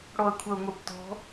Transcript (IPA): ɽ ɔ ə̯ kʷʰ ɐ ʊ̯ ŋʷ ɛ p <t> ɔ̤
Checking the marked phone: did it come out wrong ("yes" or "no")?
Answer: no